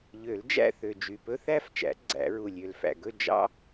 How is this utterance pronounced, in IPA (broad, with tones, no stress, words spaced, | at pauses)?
ʎø˨˩˦ld͡ʒæ̰˥˨θø˨˩ d͡ʒy˨˩pɵ˥ θæ˥˨ft͡ʃæ̰˨˩˦ ɡ͡ǀæ̰˨˩˦ɹu˨˩lʲø˨˩l fæ̰˨˩ɡɵ˥˨ d͡ʒɑ̰˥